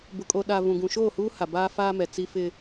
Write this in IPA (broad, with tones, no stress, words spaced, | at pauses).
bʊ˨kʼo˨ɗa˨ vũ˨ɡũ˨ ʃoː˦˨huː˦ ha˨baː˦faː˦mɛ˨ t͡si˦fɪ˦